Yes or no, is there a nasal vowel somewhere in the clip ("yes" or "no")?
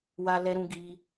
yes